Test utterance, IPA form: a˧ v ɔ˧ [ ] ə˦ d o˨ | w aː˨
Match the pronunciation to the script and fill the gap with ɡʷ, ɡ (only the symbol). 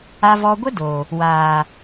ɡʷ